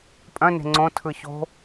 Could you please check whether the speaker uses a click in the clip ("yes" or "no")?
yes